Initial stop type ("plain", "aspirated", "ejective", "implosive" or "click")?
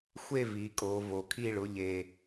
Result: ejective